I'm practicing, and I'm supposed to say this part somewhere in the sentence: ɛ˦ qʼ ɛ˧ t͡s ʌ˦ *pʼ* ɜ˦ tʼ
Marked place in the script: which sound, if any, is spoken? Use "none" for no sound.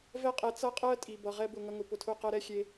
qʼ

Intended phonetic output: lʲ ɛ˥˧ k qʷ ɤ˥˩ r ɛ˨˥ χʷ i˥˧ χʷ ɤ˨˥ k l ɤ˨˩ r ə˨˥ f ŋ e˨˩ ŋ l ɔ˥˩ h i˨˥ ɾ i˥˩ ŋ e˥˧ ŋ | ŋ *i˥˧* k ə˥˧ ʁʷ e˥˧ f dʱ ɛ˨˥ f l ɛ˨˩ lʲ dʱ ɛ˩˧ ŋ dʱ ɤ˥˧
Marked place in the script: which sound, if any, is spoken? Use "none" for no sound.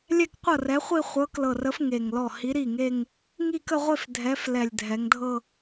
i˥˧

